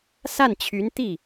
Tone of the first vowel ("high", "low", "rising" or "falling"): falling